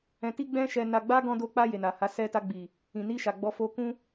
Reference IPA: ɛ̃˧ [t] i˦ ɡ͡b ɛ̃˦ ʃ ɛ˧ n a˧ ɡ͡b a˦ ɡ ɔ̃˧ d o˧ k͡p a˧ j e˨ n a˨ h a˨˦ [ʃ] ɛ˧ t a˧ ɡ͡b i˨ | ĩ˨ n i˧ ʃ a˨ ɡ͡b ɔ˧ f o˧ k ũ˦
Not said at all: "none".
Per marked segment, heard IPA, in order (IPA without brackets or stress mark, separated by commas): t, s